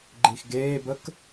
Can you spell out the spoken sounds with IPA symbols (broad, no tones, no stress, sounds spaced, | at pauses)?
ɡ͡ǃ i x ɡ eː b ə k